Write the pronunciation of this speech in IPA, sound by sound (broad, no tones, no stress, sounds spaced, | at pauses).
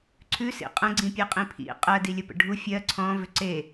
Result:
ǀʰ ʉ s ḭ qʼ ə̃ ɡ͡ǀ ĩ pʲ e qʼ ĩ pʰ ḭ qʼ ɜ d i lʲ ə p ə̰ ɖʱ u fʲ ɜ ǀʰ ɔ̃ v ʏ ǀ e